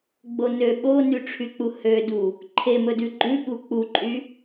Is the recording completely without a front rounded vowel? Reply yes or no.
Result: no